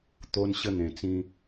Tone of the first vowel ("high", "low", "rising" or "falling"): high